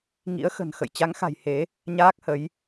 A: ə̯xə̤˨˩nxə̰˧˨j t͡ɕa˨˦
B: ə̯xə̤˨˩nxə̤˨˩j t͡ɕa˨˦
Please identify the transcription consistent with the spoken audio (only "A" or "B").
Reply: A